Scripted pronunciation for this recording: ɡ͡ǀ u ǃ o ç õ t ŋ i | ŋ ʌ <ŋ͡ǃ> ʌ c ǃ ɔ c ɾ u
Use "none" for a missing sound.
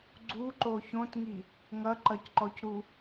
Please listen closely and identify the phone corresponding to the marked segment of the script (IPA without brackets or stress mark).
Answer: ǃ